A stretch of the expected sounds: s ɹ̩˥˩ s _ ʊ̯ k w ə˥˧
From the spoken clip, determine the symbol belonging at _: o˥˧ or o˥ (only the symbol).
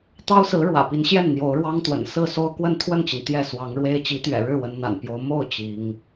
o˥